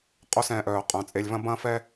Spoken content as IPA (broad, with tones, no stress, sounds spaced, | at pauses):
qʼ o˦ s ɛ̃ː˨ ʔ œː˩ qʼ œ̃˩ t͡sʼ e˨ lʲ v ɐ̃˥ b ɐ̃ː˥ f ɛ˥